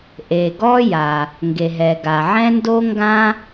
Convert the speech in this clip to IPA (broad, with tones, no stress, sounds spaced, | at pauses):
ʔ e˩ ɡ ɔ˥ j a˩ | ŋ ɡ e˩ ɦ ɛ˩ ɡ a˩ ʕ ɛ̃˥ n d o˥ ŋ ɡ ã˥